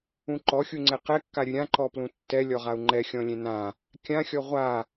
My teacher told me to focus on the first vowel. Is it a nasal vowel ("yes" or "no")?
yes